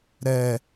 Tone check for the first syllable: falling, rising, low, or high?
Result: low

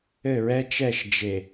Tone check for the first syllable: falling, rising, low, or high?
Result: falling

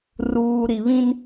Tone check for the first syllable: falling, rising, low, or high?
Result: low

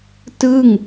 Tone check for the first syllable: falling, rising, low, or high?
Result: falling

